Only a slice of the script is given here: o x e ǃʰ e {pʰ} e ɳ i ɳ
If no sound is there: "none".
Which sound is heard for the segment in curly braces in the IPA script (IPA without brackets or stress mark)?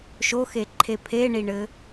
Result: pʰ